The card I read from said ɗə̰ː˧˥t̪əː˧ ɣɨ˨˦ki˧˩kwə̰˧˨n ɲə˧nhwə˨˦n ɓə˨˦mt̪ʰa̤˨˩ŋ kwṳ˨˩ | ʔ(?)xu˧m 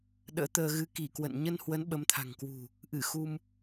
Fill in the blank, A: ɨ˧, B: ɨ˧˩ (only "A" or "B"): B